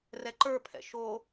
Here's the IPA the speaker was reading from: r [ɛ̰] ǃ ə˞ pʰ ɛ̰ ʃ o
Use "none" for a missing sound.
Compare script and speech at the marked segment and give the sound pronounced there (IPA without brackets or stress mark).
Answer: ɛ